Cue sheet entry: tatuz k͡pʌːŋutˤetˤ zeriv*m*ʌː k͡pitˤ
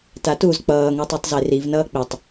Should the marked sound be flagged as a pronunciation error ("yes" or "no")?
yes